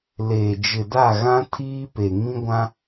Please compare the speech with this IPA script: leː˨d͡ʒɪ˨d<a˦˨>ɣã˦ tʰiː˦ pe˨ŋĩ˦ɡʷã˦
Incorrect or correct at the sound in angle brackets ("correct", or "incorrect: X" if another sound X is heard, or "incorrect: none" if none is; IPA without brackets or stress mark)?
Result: correct